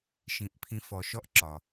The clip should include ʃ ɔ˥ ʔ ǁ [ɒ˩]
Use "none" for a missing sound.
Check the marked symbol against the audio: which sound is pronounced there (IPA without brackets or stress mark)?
ɒ˩